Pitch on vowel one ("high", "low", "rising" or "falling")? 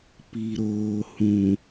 low